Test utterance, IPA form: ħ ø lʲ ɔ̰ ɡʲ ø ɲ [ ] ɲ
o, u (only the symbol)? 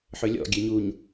u